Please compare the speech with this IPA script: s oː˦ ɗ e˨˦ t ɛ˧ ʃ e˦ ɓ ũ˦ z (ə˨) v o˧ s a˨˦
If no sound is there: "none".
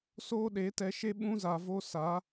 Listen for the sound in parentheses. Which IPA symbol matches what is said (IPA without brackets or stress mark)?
a˨